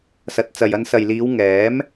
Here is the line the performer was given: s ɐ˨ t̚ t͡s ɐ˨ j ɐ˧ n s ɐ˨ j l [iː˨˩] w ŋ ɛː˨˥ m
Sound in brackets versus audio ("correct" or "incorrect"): incorrect